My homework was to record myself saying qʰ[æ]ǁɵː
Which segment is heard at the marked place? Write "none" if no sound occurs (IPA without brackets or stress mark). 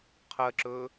ɜ